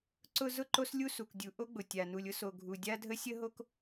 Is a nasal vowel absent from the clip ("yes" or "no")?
yes